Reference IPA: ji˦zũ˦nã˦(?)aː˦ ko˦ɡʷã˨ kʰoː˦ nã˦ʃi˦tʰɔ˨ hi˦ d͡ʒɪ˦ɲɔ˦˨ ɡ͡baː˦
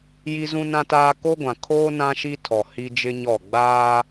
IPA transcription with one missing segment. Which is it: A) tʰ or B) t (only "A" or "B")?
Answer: B